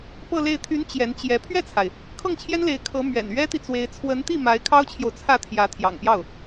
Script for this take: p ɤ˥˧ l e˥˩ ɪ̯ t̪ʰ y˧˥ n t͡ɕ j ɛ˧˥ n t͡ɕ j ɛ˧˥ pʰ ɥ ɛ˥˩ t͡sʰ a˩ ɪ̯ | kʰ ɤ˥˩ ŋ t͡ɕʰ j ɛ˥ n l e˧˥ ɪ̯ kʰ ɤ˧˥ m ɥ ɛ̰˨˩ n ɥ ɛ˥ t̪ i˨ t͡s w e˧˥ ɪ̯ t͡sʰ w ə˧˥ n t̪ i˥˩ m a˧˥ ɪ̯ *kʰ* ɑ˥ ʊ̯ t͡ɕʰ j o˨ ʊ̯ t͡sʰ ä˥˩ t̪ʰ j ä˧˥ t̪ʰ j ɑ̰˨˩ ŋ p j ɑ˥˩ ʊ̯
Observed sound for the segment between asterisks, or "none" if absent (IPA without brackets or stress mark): kʰ